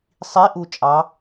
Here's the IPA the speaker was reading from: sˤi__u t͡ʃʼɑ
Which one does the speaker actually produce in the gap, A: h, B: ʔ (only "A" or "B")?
B